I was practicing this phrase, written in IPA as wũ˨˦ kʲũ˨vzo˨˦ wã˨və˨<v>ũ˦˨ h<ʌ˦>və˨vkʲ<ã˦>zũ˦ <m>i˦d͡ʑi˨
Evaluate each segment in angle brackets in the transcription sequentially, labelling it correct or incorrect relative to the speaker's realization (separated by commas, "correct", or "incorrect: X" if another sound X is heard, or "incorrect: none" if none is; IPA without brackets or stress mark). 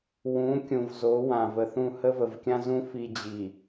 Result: incorrect: θ, incorrect: ə˦, correct, incorrect: f